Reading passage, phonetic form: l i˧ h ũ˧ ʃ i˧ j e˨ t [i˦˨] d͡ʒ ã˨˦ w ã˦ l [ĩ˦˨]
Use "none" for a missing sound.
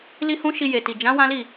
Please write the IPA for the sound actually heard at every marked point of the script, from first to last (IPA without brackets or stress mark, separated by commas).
i˨, i˦˨